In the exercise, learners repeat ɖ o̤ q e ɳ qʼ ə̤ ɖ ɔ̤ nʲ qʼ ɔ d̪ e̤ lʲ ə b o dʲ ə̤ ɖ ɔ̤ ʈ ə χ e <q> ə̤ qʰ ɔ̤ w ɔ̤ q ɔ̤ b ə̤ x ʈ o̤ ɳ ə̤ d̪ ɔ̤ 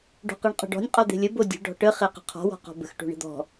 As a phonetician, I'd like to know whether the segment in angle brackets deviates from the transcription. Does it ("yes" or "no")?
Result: no